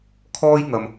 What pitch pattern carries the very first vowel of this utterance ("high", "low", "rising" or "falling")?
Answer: high